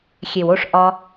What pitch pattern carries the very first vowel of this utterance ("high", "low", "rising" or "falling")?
low